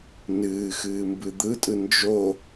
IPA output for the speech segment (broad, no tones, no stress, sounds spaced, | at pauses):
n ɨː x ɨː m b ɨ d̪ ɯ tʼ ɯ n d͡ʒ o